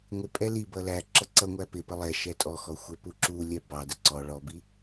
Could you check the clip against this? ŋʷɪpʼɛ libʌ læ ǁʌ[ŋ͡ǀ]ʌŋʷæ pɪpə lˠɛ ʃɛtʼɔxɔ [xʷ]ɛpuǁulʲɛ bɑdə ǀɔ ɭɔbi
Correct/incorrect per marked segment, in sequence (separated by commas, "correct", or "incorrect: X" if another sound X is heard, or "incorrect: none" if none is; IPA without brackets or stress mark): incorrect: ǀ, correct